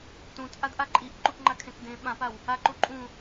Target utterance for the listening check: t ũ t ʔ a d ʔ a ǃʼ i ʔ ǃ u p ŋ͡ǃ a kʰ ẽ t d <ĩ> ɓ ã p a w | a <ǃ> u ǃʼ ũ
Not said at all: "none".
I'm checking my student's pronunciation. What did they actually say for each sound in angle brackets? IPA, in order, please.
ẽ, ǃ

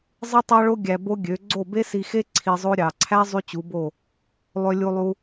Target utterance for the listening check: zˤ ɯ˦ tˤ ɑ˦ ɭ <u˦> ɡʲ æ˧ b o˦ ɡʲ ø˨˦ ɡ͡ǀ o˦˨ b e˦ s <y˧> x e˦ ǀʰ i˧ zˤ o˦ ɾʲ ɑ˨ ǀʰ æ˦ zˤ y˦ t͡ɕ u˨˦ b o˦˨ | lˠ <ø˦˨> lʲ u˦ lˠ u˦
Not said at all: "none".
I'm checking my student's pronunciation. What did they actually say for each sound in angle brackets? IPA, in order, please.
o˦, i˧, ø˦

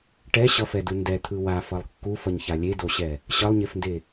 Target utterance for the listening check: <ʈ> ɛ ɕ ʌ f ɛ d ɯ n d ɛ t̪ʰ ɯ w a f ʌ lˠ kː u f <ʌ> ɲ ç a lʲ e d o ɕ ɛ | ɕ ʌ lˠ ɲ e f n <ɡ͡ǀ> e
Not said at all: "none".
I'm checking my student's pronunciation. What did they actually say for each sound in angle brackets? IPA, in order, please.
ʈ, ʌ, d

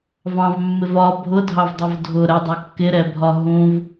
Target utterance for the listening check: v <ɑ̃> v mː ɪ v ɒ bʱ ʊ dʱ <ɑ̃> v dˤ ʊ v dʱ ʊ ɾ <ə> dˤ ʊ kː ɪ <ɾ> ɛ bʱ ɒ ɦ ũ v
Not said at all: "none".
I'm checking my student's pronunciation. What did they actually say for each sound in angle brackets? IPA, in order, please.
ɑ̃, ɑ, ə, ɾ

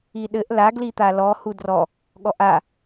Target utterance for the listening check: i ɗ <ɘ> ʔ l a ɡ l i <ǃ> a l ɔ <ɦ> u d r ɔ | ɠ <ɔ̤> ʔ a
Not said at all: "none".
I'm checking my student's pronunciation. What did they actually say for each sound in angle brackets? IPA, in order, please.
ɘ, t̪, h, ɔ

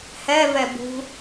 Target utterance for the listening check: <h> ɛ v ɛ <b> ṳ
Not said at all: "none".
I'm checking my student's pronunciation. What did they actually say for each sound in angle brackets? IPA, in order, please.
h, b

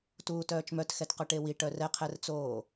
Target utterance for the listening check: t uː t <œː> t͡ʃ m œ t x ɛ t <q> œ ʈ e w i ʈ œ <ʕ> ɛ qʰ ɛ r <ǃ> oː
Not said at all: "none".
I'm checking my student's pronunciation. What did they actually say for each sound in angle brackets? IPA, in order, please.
œː, q, r, t͡s

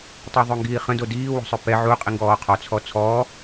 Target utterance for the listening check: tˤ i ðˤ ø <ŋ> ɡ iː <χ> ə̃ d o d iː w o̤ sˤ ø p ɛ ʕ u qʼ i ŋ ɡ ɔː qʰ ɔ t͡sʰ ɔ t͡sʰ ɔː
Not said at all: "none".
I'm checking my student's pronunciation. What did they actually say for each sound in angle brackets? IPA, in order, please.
ŋ, χ

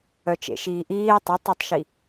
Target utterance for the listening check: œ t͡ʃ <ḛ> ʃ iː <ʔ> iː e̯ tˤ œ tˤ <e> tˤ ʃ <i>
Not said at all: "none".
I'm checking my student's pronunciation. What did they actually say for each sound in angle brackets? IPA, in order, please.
ḛ, ʔ, e, i

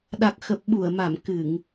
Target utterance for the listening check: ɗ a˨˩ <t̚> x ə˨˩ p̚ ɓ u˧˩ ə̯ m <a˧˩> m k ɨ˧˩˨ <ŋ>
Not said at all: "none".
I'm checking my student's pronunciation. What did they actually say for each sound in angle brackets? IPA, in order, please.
k̚, a˧˩, ŋ

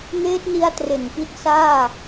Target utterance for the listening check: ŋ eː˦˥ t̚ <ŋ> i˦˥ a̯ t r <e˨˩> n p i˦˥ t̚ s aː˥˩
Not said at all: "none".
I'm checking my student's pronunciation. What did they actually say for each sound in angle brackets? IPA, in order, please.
n, e˨˩

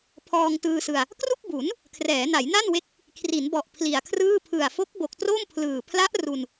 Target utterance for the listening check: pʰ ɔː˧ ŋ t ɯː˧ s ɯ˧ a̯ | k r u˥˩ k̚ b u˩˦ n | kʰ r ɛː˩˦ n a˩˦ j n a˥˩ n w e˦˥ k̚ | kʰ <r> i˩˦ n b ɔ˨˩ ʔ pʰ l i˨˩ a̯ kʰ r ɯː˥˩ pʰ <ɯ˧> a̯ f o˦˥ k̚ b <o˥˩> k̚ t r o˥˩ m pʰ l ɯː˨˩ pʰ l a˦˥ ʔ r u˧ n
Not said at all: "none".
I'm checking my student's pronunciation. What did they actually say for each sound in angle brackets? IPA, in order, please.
r, ɯ˨˩, o˨˩

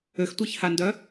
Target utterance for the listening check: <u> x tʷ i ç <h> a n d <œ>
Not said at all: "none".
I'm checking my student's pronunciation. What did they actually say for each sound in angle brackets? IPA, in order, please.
ø, h, œ

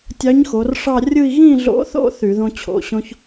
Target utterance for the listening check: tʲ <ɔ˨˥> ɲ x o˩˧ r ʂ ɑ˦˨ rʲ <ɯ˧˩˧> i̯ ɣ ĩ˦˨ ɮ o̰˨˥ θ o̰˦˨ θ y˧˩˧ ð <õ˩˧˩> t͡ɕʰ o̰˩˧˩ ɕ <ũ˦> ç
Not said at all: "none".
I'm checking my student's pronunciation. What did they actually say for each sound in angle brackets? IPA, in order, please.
ɑ˨˥, ɯ˦˨, õ˦, õ˦

